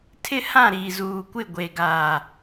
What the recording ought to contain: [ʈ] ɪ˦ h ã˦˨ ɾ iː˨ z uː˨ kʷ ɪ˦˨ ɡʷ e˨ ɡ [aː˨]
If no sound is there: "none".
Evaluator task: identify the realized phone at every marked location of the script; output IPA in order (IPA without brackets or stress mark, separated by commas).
tʰ, aː˨